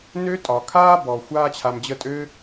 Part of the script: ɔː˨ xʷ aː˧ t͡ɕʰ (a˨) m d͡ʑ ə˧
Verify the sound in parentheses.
correct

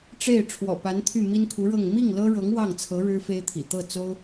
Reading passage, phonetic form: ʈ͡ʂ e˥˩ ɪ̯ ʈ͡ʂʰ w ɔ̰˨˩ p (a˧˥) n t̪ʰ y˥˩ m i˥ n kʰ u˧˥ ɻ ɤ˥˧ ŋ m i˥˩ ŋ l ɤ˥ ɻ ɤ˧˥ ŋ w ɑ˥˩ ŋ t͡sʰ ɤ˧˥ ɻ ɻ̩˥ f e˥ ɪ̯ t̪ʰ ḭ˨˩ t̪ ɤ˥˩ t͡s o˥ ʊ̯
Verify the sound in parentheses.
correct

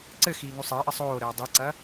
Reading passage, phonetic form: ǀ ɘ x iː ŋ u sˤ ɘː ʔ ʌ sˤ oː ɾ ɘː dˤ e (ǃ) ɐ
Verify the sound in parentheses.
incorrect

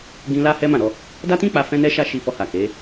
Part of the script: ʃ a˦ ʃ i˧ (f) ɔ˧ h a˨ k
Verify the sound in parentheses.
correct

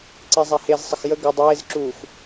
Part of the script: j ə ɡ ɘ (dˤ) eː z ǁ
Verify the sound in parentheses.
correct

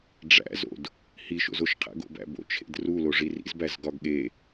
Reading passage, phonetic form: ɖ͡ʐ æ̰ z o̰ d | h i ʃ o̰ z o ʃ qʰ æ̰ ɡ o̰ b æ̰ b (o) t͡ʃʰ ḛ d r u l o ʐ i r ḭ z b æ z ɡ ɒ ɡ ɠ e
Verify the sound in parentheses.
incorrect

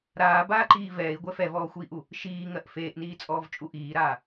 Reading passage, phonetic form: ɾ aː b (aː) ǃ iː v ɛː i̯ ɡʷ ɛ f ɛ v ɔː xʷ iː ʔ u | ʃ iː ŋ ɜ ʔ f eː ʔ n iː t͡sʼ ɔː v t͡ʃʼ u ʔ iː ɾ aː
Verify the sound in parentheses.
correct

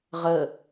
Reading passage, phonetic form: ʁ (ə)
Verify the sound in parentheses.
correct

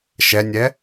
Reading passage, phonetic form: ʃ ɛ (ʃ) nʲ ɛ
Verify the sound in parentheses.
incorrect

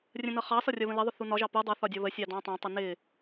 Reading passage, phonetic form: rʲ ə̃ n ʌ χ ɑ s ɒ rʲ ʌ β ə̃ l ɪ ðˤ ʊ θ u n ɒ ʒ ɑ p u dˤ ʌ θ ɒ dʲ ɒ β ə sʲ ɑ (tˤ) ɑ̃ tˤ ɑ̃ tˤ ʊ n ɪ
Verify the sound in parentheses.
incorrect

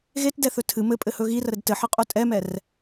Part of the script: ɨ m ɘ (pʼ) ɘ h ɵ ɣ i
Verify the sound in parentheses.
correct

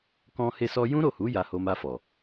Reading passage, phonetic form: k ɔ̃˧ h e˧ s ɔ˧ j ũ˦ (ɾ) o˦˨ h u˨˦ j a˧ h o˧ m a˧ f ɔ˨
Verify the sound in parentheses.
correct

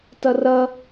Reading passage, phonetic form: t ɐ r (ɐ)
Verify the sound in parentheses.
correct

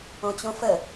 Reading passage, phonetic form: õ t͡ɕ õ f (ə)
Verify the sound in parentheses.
correct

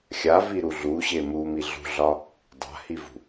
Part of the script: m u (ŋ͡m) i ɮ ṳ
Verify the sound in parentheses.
incorrect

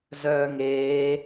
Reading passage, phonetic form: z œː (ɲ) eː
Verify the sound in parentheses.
incorrect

